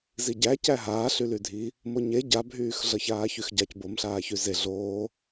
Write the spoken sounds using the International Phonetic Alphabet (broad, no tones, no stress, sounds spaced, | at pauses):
z i ɟ æ c æ ɦ aː ɬ y l y dʱ i | m o ɲ e ɟ a bʱ yː x ɮ ʌ ç aː ç y x ɟ a c b o m ɬ aː ç y z e ɮ oː